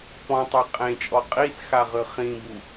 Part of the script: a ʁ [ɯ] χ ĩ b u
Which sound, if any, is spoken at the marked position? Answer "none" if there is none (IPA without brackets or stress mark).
ɯ